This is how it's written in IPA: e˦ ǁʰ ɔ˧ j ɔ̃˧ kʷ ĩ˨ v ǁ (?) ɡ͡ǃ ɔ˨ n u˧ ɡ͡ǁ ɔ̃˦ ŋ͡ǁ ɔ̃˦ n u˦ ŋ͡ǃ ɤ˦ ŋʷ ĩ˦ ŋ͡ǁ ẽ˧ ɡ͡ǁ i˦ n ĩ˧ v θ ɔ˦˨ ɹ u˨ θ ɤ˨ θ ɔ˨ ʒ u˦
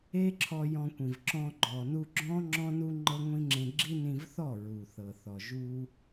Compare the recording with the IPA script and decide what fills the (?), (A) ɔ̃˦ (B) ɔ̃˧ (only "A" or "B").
B